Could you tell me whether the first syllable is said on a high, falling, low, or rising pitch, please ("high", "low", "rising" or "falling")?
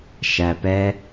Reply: low